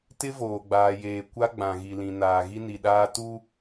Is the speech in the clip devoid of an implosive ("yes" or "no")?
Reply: no